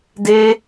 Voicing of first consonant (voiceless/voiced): voiced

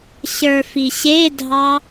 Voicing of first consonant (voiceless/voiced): voiceless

